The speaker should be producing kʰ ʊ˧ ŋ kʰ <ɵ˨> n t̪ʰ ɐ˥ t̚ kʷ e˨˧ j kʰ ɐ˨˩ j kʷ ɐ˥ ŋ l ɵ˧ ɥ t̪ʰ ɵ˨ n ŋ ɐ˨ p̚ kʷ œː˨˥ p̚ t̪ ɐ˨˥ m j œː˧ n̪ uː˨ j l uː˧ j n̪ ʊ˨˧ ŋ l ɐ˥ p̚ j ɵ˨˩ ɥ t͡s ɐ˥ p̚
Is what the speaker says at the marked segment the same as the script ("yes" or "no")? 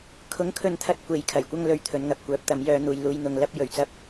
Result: no